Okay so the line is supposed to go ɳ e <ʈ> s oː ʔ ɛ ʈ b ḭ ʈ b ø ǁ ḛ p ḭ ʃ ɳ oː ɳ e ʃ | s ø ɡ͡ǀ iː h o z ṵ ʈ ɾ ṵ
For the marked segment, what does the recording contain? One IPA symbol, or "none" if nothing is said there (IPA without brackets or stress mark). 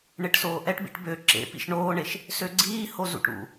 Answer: ʈ